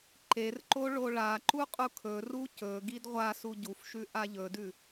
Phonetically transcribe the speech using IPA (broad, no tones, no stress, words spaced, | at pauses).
ǃerǃo ɭoɭaǃu qʼukʰɵru cɵ ɡidʁʷasu ɟufʃʉ ʔaʎɵdʉ